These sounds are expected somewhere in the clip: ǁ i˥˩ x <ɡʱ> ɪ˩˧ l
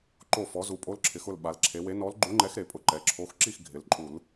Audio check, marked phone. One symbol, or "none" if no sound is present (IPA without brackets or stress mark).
ɡʱ